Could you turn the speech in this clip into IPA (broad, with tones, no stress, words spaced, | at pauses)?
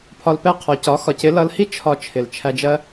pʰɒ˧lpɛ˦˨ qʰɔ˨cɒ˨˦ xɒ˨cɪ˨˦lʌ˧lhi˦ t͡ʃʰɒ˧t͡ʃʰɪ˨l t͡ʃʰæ˧d͡ʒɜ˦